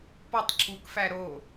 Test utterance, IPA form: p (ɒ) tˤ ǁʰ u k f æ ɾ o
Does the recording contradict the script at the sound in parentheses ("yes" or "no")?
no